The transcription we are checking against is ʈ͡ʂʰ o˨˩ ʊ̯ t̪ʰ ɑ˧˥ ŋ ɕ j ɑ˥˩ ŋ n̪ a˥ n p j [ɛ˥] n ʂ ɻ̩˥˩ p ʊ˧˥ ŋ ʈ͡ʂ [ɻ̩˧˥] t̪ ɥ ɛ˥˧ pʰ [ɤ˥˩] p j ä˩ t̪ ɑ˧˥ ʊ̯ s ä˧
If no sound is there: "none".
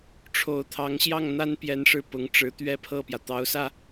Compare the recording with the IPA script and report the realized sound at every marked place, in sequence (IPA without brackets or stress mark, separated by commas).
ɛ˧˥, ɻ̩˧˥, ɤ˥˩